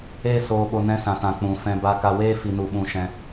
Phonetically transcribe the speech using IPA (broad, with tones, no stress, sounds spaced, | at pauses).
eː˦ s oː˧ ɓ o˧ n ɛ̃˧ s ã˨ t ã˨ k͡p ũ˨ f ɛ̃˧ b a˧ k a˧ w eː˦ f i˧ n u˧ ɓ ũ˧ ʃ ɛ̃˧